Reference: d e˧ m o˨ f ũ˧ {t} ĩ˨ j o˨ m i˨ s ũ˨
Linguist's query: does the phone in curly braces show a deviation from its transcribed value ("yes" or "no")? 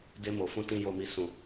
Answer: no